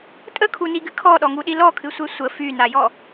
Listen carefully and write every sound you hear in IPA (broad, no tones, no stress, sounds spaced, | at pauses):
tʼ ə kʰ u n i ɡ ɨ kʰ ɔ ɗ ɔ ŋ u ɗ i l ɔ kʰ ɨ sʷ e sʷ ə f y n a j ɔ